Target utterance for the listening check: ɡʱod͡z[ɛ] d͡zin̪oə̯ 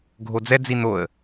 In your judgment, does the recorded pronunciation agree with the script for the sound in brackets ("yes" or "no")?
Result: yes